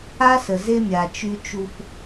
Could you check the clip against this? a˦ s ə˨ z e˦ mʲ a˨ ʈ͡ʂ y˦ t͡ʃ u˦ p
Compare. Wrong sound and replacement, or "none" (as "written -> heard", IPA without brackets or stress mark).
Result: ʈ͡ʂ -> t͡ʃ